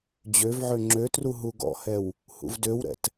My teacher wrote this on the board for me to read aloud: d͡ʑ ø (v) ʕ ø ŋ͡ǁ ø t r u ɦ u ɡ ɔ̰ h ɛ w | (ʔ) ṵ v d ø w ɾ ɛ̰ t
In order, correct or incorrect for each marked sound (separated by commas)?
correct, incorrect